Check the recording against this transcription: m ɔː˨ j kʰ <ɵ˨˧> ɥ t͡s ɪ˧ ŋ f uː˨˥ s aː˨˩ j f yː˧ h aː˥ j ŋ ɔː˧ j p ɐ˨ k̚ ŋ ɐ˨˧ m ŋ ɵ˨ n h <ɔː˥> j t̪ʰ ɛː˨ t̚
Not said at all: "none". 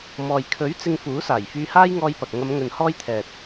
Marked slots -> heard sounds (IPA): ɵ˨˥, ɔː˥

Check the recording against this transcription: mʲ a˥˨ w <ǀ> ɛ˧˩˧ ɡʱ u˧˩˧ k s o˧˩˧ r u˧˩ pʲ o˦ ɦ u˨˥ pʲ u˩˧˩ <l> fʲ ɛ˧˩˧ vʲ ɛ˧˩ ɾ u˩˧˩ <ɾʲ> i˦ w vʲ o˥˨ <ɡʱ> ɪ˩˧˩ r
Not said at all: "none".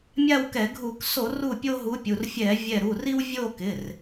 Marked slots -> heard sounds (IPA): k, r, r, k

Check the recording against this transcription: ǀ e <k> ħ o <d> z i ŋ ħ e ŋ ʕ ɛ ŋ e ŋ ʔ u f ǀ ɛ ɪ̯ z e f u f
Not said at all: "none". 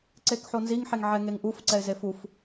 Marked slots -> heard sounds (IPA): k, n

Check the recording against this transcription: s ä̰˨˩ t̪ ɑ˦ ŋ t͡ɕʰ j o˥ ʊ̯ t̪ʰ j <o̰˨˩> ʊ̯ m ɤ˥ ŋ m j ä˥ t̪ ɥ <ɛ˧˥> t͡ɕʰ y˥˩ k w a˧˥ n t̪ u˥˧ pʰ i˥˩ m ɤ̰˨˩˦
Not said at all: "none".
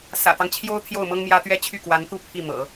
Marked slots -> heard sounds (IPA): o˥˩, ɛ˥

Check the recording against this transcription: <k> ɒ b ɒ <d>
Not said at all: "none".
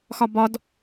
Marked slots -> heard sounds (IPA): x, d

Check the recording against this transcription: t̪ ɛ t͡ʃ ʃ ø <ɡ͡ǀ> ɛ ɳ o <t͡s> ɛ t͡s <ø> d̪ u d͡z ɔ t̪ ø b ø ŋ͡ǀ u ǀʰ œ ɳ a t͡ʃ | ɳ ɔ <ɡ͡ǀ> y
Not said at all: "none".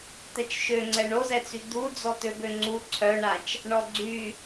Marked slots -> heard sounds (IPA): ŋ͡ǀ, z, y, ɡ͡ǀ

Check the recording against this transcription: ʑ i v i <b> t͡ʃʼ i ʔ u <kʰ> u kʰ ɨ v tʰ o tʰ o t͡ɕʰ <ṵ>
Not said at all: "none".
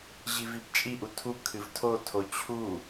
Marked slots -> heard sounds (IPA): b, tʰ, u

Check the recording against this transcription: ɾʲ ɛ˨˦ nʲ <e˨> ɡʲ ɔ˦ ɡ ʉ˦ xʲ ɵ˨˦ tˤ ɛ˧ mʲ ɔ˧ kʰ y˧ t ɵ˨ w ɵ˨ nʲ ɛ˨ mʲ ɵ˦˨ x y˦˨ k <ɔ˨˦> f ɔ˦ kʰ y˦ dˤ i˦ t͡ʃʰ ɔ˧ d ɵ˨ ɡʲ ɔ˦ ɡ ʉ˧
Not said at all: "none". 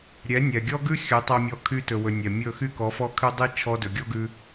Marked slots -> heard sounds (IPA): ɛ˨, ɔ˨˦

